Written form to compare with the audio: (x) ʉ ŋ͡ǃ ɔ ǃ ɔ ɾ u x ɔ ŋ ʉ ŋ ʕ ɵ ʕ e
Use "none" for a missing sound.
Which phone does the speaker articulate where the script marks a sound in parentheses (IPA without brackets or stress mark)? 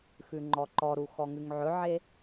x